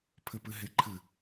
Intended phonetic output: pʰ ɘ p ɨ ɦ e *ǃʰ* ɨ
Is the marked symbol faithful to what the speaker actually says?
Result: yes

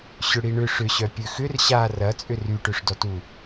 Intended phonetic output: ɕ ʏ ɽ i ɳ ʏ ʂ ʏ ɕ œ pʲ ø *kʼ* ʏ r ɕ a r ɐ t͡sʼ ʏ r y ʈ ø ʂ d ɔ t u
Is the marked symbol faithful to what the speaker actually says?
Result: no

